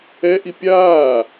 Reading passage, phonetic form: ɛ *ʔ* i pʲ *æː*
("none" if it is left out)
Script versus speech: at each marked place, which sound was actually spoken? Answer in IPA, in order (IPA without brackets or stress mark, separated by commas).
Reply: ʔ, aː